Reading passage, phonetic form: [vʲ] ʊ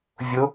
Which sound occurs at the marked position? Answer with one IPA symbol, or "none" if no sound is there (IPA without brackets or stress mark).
vʲ